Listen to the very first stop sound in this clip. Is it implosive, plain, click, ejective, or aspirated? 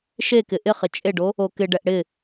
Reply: plain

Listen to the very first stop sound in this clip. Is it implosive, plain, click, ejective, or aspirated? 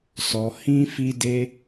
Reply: plain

